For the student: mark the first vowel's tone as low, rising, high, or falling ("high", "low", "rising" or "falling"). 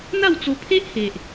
falling